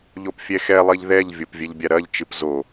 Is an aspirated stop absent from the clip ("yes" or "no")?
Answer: yes